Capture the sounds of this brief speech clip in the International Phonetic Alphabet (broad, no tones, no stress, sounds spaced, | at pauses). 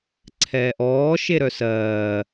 ǀʰ ɛː ʔ ɔː ʃ e ɾ œ s ɜː